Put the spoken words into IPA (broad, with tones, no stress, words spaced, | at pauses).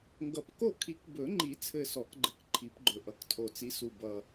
ŋɡʌ˨˩pko˦˨kʰi˨˩˦k bɵ˨˩˦ŋ͡ǃi˨˩˦ t͡sʰɘ˦˨sɔ˨˩˦kɡ͡ǃɘ˨˥k ǃʰi˨˩˦pɡ͡ǃɵ˨˩ʔʌ˨˩˦k tʰo˨˩t͡si˨˥ su˨˩bʌ˨˩